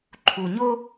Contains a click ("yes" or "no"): yes